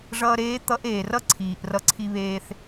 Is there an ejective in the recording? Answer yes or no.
no